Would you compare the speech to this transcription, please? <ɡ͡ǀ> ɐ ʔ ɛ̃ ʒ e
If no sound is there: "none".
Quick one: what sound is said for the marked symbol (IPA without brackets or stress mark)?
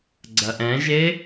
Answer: ɡ͡ǀ